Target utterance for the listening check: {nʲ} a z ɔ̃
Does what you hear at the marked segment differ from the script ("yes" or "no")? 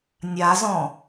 no